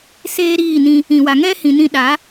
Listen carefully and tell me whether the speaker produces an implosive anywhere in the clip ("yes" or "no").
yes